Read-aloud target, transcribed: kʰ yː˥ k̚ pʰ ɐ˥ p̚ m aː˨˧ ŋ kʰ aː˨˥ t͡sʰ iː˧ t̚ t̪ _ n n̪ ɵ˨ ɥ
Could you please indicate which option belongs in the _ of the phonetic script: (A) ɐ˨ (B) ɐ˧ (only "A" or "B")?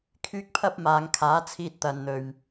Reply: A